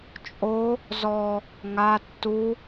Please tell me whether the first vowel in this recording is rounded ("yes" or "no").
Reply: yes